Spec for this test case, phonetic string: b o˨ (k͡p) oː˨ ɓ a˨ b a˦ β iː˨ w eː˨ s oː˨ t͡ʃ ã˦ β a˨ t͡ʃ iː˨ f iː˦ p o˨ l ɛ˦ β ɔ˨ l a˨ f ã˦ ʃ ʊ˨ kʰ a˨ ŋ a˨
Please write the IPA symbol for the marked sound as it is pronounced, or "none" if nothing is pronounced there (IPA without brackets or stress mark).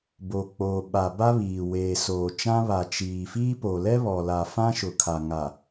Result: k͡p